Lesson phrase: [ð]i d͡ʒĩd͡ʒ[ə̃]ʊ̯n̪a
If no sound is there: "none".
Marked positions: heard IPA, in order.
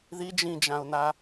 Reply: ð, ã

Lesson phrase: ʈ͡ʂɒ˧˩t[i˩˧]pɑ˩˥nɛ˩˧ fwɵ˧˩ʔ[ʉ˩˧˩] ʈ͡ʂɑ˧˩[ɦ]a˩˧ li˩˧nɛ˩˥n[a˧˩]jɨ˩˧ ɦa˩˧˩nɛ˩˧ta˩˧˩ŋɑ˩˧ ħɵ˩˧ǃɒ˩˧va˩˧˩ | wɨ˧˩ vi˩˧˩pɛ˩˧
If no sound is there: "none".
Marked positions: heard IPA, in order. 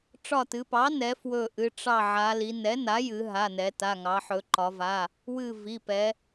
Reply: ɨ˩˧, ɨ˩˧˩, ʕ, a˩˥

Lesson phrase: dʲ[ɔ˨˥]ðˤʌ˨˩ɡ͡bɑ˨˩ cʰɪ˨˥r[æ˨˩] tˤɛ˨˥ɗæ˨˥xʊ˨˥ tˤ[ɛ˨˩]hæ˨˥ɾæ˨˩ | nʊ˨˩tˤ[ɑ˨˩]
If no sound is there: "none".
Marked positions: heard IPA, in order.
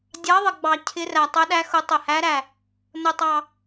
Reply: ɑ˨˥, æ˨˩, ə˨˩, ɑ˨˩

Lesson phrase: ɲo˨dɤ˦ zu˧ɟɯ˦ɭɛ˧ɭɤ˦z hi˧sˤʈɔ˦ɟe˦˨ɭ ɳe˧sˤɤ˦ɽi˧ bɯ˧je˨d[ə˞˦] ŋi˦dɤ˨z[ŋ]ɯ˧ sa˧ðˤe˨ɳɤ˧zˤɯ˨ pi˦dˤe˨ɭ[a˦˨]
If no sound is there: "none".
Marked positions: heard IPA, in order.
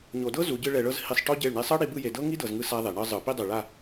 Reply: ɤ˦, ŋ, a˦˨

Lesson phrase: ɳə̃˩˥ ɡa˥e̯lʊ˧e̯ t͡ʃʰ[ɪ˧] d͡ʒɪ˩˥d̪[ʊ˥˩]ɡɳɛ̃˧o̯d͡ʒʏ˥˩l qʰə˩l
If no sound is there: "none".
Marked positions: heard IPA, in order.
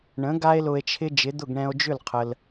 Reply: ɪ˧, ʊ˥˩

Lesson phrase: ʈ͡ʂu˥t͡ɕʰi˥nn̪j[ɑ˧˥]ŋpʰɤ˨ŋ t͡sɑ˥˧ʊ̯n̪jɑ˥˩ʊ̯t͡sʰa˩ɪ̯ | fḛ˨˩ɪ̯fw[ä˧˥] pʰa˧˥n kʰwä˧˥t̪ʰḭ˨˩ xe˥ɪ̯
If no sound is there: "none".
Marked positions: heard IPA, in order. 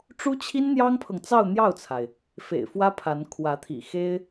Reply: ɑ˥, ä˥

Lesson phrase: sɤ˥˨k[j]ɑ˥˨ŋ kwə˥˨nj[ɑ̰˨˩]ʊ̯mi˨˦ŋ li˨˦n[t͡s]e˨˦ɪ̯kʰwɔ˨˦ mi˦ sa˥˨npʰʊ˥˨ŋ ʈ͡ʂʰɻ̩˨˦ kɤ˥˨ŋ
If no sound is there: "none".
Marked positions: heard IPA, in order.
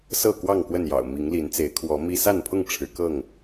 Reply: w, ɑ̰˨˩, t͡s

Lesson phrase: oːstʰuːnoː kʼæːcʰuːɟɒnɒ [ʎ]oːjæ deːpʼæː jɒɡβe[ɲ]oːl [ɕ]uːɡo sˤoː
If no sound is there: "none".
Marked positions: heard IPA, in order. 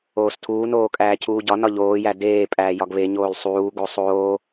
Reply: ʎ, ɲ, sˤ

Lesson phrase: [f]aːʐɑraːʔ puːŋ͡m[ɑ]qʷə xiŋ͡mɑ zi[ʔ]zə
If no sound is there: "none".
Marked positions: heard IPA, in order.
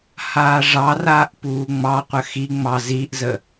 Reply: h, ɑ, ʔ

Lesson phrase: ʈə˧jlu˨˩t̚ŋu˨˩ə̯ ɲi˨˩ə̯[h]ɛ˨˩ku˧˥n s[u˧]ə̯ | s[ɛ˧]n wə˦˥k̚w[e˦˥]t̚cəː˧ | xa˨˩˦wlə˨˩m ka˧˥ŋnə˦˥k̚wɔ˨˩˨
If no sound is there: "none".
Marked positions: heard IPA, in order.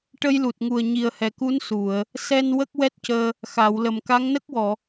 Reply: h, u˨˩˨, ɛ˧, ɛ˦˥

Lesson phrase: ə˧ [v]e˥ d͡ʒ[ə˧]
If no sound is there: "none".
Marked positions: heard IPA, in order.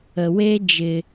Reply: w, ɪ˧

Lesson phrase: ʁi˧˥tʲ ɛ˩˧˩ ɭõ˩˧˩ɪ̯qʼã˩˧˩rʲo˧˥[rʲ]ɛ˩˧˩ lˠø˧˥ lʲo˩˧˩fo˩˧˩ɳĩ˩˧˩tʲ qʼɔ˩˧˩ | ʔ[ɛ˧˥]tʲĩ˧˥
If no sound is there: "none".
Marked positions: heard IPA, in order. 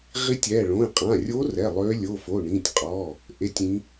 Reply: r, e˧˥

